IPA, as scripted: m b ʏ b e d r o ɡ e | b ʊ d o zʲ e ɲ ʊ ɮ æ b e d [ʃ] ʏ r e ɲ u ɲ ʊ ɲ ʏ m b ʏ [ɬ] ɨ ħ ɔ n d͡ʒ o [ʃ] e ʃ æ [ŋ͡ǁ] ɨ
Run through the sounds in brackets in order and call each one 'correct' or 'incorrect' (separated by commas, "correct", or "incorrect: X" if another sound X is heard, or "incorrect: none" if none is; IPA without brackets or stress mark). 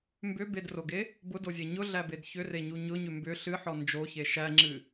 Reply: incorrect: ç, correct, incorrect: ç, correct